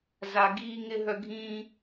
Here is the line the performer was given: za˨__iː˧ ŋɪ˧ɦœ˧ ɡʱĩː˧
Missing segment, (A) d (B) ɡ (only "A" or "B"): B